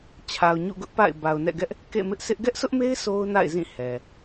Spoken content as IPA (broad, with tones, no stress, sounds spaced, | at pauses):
t͡ɕʰ a˨ ʊ̯ ɲ ṵ˦˨ ɡ ʊ˦ ʔ p a̰˦˨ ɪ̯ b a˨ ʊ̯ n ɛ̰˦˨ ɡ ɛ˦ ʔ | k ḛ˦˨ m ɪ˦ ʔ sʰ ɪ˦ ʔ ɡ ɛ˦ ʔ sʰ ʊ˦ ʔ m e˦ ɪ̯ sʰ o˦ ʊ̯ n a̰˦˨ ɪ̯ z ĩ˦˨ h ɛ˨